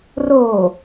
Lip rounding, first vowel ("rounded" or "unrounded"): rounded